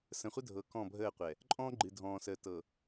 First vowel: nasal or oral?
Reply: nasal